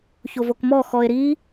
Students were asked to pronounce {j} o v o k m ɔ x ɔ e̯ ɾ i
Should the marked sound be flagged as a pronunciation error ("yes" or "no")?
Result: yes